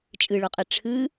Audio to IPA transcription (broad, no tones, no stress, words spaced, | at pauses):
t͡ʃʼɨɭoqʼe ʈ͡ʂʰɨ